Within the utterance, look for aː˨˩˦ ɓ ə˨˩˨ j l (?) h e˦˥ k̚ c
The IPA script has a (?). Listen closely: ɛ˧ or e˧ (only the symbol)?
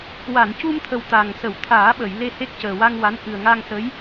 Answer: e˧